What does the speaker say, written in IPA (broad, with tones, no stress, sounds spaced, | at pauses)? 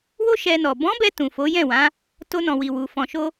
w o˦ ʃ ɛ˧ n ɔ˨ b ɔ̃˨˦ b ɛ˧ t ũ˨ f o˨˦ j ɛ̃˦˨ w ã˨˦ | t o˧ n ɔ̃˨ w i˨ w u˨ f ɔ̃˨ ʃ o˧